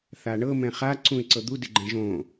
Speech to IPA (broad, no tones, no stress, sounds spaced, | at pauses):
θ a ɳ ɤ m ɛ̃ χ a ǀ ũ ɪ̯ ǀ ɤ d̪ u d ɪ ɡ͡ǃ ɛ̃ ʒ õ